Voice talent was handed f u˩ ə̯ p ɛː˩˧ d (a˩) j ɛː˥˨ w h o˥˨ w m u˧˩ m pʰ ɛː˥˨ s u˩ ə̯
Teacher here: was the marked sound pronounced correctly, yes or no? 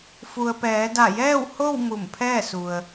no